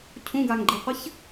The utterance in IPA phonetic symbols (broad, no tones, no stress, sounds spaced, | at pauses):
cʰ ũ ɡ a ŋ ɡ͡ǃ i qʷ ɘ ç